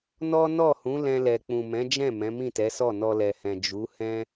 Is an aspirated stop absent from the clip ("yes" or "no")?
yes